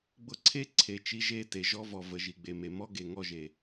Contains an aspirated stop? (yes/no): yes